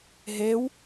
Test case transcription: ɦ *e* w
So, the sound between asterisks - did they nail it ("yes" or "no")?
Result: yes